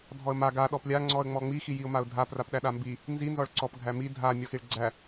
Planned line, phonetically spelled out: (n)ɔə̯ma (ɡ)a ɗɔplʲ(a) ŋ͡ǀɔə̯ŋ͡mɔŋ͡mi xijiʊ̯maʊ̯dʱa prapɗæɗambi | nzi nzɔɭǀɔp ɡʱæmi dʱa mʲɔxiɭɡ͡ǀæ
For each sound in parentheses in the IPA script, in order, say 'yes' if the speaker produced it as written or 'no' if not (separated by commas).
no, yes, yes